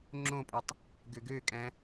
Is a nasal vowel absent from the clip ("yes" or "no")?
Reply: no